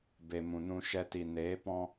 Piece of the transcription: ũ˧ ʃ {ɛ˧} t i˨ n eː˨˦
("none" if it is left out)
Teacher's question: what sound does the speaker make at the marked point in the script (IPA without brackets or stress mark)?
ɛ˧